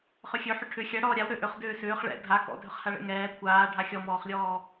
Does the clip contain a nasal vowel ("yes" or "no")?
no